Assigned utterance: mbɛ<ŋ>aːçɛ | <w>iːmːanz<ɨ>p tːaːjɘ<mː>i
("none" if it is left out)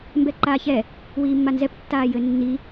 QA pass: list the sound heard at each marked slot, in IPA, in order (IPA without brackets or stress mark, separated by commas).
ǃ, w, ɛ, nː